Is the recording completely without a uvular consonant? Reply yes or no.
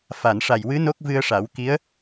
yes